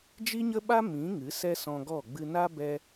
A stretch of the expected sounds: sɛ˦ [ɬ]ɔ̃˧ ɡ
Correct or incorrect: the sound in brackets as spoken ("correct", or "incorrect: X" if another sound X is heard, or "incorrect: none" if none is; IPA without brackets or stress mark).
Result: incorrect: s